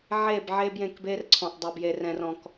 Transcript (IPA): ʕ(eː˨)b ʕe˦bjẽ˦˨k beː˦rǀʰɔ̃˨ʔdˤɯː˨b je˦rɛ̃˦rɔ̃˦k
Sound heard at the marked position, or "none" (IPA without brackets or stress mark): eː˦˨